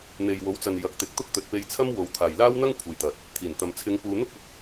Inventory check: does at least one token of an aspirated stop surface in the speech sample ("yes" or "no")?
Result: yes